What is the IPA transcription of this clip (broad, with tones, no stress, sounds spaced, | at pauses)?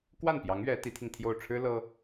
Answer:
k w a˥˩ n p j ɑ˧˥ ŋ ɥ ɛ˧˥ t̪ i˧˥ t̪ʰ i˧ ŋ t̪ʰ j o˥˩ ʊ̯ ʈ͡ʂʰ ɻ̩˥ l ɤ˥